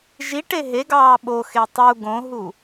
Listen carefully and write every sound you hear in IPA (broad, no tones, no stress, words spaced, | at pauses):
ʒiʈe ɦeɡɑː ɓoxe tˤu ɡõɦu